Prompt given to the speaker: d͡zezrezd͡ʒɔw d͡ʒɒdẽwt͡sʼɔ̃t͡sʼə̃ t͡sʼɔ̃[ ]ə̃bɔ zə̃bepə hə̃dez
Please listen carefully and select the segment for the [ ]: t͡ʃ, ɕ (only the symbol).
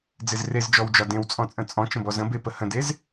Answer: t͡ʃ